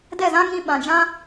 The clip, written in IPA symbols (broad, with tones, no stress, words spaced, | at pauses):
dɛ˦˨zã˦ŋĩ˧ ɓã˨d͡ʒã˦